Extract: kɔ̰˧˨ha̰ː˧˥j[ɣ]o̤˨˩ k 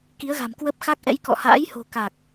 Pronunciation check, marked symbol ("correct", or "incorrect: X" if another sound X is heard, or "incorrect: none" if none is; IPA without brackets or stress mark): incorrect: h